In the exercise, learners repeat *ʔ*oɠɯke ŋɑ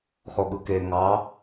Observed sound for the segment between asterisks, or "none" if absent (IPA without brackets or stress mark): χ